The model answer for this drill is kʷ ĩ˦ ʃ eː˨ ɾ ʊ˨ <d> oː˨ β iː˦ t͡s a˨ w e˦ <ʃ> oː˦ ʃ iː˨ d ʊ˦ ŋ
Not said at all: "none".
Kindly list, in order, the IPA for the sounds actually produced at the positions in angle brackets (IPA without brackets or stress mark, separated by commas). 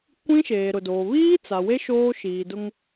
d, ʃ